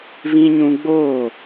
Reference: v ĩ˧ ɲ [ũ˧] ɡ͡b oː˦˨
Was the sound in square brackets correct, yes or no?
yes